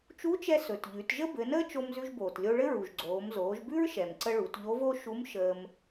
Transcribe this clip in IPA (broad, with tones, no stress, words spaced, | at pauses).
t͡ʃu˧˥t͡ʃɛ˧ sɵ˩tʎʉ˩˧t ʒə˥bɘ˩˧nəː˥ t͡ʃo˧mzʉ˧ʒboː˩tlʲo˧ ɭɘ˥ɹu˩ʒɡ͡ǀoː˩˧m zoː˩˧ʒbʉ˥ɹʃɛ˩mǀə˧ ɭu˩˧tʎo˧˥vo˥ ʃu˧˥m ʃəː˧m